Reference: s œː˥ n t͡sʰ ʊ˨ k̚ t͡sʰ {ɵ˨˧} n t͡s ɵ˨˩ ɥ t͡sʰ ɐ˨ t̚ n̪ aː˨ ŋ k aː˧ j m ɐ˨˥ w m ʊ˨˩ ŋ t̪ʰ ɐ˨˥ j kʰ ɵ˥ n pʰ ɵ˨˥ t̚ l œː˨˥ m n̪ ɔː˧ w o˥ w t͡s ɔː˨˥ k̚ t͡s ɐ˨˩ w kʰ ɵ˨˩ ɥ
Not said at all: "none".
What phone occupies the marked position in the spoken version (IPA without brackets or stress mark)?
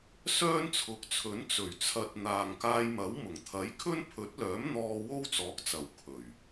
ɵ˨˥